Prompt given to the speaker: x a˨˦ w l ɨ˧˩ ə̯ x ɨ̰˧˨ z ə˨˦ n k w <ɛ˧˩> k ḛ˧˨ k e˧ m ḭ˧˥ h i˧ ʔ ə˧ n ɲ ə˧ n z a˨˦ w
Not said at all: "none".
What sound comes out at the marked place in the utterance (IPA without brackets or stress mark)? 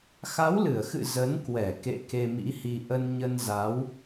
ɛ˧˩